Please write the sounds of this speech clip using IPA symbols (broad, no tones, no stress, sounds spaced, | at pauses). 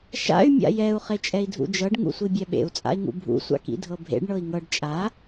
ʃ a̰ y̯ mʲ a̰ j ɛ u̯ χ e t͡ʃʼ ɛ i̯ dʱ ṵ d͡ʒ ɤ ɖ ŋ ṵ sʷ i bʲ ɛ ɓ ḛ u̯ t͡sʼ a̰ i̯ ŋ ṵ bʱ ṵ sʷ a̰ k ḭ dʱ ɤ bʱ ḛ ɖ ɳ ɤ i̯ ŋ ɤ ɖ t͡ʃʼ a